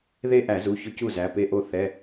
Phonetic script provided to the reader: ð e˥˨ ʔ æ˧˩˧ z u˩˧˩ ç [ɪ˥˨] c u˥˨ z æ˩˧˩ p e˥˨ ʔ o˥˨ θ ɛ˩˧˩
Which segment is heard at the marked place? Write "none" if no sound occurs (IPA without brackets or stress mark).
ʏ˥˨